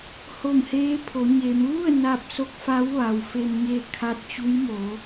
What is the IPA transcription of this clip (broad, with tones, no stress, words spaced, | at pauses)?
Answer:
ho˧˩mheː˧˥pʰo˩˧ɲeː˩˧m ʋu˥˨ə̯ na˧p̚so˧˥k̚fa˧˥w ʋa˩wfe˧mɲe˥˨ kʰa˧˥t̚t͡ɕu˧˥jmo˩˧